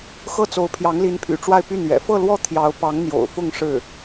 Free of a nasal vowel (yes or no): yes